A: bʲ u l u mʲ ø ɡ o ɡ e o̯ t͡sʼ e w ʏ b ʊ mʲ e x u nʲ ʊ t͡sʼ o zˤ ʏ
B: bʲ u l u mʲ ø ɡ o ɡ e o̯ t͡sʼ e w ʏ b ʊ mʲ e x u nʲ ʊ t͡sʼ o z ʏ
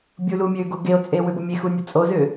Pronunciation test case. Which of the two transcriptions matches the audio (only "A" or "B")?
B